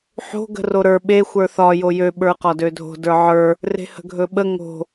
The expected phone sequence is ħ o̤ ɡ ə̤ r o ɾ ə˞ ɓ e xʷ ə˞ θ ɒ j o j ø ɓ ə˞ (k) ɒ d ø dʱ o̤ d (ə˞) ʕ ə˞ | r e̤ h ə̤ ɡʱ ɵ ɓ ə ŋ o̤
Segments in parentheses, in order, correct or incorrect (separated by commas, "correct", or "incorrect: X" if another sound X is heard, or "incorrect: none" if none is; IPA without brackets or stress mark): incorrect: q, correct